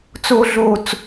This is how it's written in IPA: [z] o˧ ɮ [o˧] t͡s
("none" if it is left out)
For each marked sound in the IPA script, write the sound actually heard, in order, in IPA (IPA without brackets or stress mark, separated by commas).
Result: t͡s, o˧˩